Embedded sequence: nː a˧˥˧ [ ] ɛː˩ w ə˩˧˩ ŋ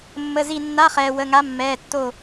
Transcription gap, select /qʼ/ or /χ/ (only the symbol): χ